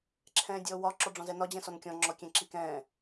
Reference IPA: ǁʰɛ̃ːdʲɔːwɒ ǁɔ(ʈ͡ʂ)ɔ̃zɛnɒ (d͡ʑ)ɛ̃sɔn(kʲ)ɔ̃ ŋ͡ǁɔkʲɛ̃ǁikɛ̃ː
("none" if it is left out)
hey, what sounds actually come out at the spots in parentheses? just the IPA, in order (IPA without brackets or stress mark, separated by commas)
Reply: ɖ͡ʐ, d͡ʑ, kʲ